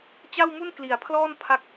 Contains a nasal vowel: no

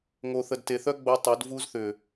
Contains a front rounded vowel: yes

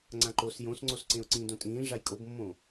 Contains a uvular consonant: no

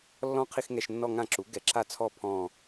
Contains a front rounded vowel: no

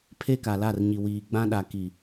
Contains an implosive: yes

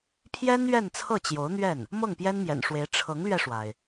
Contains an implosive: no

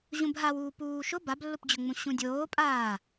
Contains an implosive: no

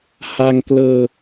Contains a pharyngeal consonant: no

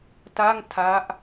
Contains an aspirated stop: yes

